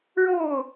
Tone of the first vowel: falling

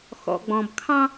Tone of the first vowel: low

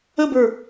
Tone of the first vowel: falling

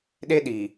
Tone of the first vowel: high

